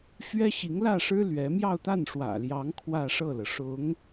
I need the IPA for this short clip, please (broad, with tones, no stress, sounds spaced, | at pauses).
ɕ ɥ ɛ˥ ɕ i˧˥ ŋ l ä˥˩ ʂ ɻ̩˥ l ɥ ɛ˧˥ m j ɑ˥˧ ʊ̯ t̪ a˥˩ n ʂ w ä̰˨˩ l j ɑ˧˥ ŋ kʰ w ä˥˧ ʂ ɤ˥˩ l ɤ˩ ʂ ʊ˧˥ ŋ